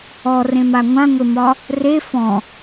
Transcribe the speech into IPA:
ɔ r ẽ m a ŋʷ ã ŋʷ e m ɒ | r e f ɔ̃

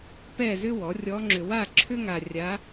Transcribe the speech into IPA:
p ɛ˥˨ z ʏ˥ w ɔ˩˥ rʲ ɔ˧˥ ŋ͡ǁ ʏ˧ w a˥˨ ǁʰ ʏ˥ ŋ a˧ rʲ a˧˥

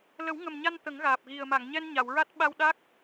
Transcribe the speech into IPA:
l ə˨˩˦ w ŋ ə˨˩ m ɲ a˧ n t̪ ə˨˩˦ ŋ ɣ aː˨˩ p̚ ɣ i˨˩ ə̯ m a˨˩˨ ŋ ɲ ɛ˧ n ɲ a˨˩˨ w ɹ a˦˥ t̚ ɓ a˧ w ɗ a˦˥ k̚

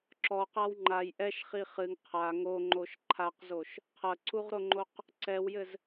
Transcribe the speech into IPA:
ǁ ɔ q a w ŋ͡ǃ a j ʔ ɛ ʃ χ i χ ɨ ŋ qʰ a ŋ o ŋ͡ǃ o ʃ ǃʰ a q z o ʃ | qʰ ɐ ǀ u ʁ ɾ o ŋ͡ǃ o q | ǀ ɛ w j ɘ z

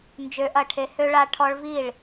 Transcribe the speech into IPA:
n d͡ʒ ø˦˥ ʔ ɐ˥˨ ʈʰ e˦˥ h ø˦˥ ɭ a˦˥ ʈʰ ɔ˦˥ ɭ v i˥˨ ɭ

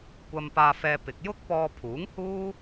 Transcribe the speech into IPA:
kʷ ɐ˨ m p aː˧ f ɛː˧ p ɪ˨ k̚ j ʊ˥ k̚ p ɔː˧ pʰ uː˨˥ ŋ h uː˥

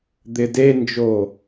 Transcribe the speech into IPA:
d̪ ɪ d e n d͡ʒ o

